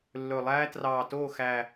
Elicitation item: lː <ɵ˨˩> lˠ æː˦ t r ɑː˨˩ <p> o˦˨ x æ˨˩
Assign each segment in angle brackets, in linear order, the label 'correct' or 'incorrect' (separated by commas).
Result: correct, incorrect